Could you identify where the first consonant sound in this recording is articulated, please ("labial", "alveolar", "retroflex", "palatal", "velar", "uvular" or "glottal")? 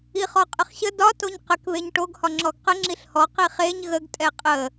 uvular